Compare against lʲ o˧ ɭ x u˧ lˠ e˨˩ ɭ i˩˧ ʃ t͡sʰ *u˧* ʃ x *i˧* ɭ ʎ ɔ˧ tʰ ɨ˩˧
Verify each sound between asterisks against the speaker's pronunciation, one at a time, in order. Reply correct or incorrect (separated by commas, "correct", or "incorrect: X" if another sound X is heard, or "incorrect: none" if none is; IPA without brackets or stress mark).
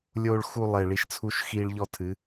correct, correct